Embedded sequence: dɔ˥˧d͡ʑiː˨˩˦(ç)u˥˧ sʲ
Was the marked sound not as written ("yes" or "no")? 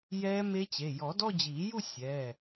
yes